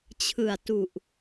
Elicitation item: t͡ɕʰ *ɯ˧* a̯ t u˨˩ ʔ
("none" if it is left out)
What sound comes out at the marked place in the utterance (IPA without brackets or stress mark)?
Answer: ɯ˨˩